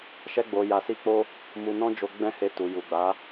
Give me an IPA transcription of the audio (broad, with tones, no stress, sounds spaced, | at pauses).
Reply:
ʃ ɛ˧ ɡ͡b o˨ j a˨ s i˧ k͡p o˦ | m u˧ n ɔ̃˦ d͡ʒ o˧ ɡ͡b ɛ̃˦ h e˧ t u˨ j u˨ ɡ͡b a˨˦